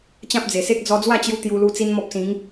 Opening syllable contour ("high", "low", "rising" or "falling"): high